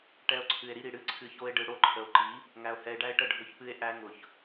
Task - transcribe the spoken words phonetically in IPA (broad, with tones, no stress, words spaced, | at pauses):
ʈɛ˦o̯ǀʰɨ˧e̯ ɾi˧ɾi˨ɽɨ˦˨ ǀʰɨ˧ço˦e̯ɖɯ˧ ɽo˦ǃʰə˨o̯ǃi˨˦ | ŋæ˧o̯hɛ˧e̯ɖæ˦e̯ʈə˦˨ ɖʱʊ˧çpɨ˧e̯ ʔæ˧ ŋʊ˨ç